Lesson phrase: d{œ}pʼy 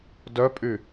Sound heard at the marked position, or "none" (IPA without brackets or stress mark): œ